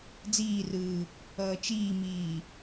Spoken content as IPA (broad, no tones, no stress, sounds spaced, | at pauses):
d͡z iː r ɯː | ʌː t͡ʃ iː m iː